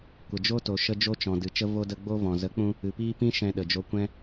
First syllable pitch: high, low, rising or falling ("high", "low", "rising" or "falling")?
low